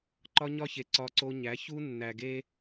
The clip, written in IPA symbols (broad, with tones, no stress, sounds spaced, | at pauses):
ǃ ɒ˦ ɲ ɒ˦ ç e˨ ǀ ɒ˦ ǀ o˦ ɲ æ˨˦ ç u˦ nː æ˨ ɡ e˦